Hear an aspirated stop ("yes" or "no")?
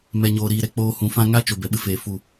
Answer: no